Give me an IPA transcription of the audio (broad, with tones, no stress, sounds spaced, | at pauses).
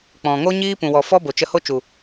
k͡p ɔ̃˨ ŋ o˦ ɲ iː˦ p ũ˨ w ɔ˨ f ɔ˦ b o˨ t͡ʃ ə˧ h o˦ t͡ʃ u˨